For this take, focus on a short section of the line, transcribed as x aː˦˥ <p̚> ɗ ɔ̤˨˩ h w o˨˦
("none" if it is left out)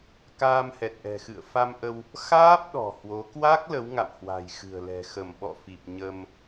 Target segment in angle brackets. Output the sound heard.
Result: p̚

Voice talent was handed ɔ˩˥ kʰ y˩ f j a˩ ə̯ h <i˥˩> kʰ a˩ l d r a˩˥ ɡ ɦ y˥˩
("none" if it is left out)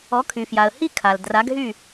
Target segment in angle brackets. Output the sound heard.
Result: i˥˩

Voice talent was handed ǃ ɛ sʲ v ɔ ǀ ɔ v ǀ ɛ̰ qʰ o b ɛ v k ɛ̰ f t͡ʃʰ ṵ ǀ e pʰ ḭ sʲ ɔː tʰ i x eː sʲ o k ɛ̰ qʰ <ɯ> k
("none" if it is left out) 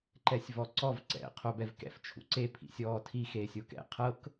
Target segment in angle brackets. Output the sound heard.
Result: ɤ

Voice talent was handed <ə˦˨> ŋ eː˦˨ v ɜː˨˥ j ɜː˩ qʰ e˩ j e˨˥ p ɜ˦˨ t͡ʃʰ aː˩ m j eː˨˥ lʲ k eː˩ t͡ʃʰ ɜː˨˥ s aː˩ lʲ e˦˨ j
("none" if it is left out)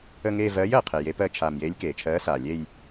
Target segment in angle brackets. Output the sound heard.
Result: ə˦˨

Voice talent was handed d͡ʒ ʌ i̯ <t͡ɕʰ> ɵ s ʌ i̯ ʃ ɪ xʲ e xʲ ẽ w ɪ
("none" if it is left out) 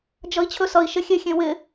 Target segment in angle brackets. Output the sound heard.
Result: t͡ɕʰ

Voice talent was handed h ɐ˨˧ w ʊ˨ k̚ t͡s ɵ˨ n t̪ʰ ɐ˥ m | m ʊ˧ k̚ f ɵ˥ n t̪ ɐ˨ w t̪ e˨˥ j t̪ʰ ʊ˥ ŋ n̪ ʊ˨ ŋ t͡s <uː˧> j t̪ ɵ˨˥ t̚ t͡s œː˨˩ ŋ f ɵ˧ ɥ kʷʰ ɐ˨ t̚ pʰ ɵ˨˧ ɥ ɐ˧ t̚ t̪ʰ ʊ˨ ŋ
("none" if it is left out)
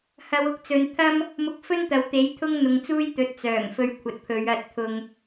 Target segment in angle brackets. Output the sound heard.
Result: uː˥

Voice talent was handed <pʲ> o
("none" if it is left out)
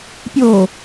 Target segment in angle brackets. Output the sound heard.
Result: pʲ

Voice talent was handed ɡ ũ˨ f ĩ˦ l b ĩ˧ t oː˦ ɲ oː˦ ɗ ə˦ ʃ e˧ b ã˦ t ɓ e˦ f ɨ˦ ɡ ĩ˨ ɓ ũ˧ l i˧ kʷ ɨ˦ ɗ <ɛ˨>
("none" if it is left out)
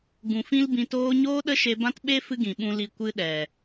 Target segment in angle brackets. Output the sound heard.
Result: ɛ˨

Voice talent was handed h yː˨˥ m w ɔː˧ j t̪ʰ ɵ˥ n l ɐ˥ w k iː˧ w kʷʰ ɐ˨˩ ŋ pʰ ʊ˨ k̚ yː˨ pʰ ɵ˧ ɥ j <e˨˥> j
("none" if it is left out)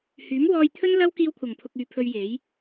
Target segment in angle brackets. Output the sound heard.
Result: e˨˥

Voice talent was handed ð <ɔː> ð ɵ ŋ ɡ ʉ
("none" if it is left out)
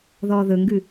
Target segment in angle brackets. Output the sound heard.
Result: ɔː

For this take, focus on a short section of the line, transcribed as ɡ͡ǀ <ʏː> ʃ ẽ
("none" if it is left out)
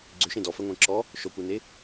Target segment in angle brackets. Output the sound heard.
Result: ʏ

